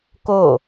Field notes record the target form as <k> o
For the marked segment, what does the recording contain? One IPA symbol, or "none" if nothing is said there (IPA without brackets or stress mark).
k